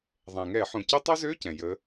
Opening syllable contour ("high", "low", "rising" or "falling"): low